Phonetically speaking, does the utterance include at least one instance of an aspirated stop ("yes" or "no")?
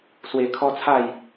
yes